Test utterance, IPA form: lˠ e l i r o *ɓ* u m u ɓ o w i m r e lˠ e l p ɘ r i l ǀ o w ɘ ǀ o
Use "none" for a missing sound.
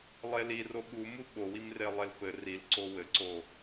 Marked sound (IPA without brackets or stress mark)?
ɓ